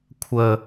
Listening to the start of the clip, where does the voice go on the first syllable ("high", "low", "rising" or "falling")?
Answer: low